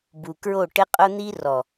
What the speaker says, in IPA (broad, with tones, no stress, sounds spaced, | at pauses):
b u˨ k ɹ o˦˨ ʈ ɪ˦ qʼ ʊ˦ n̪ i˦ r ɔ˨